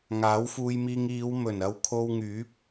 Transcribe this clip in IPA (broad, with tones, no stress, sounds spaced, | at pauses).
ŋ aː˨˥ w f uː˧ j m iː˧ ŋ iː˨˧ w m ɵ˨˩ n ɐ˧ w kʰ o˧ w ŋ yː˨˥ p̚